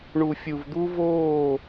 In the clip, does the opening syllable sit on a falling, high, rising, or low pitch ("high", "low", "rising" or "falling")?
low